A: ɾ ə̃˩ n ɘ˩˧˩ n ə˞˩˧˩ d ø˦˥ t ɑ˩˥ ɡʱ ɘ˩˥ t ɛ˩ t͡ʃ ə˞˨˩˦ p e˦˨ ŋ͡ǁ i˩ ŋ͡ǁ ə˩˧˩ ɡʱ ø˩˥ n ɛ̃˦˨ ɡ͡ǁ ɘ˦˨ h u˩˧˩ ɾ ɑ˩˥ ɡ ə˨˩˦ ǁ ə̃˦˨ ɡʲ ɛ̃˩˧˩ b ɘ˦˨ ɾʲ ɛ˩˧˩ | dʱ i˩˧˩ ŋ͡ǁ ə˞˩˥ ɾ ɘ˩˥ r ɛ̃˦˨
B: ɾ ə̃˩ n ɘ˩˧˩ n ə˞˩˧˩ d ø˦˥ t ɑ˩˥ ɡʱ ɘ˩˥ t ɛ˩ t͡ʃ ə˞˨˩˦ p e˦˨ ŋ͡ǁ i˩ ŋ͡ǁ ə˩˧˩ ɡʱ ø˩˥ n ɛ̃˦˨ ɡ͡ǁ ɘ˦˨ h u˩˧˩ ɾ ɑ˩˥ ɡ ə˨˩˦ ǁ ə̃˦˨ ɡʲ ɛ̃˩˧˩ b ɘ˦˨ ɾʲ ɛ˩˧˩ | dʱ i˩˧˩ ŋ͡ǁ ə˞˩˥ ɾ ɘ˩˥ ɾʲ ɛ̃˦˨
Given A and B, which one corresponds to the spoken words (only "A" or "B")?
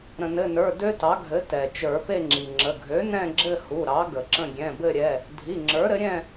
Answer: B